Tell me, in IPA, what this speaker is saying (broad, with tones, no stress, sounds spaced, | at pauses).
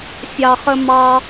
sʲ ɑ˨ χ ə˧ m ɑ˧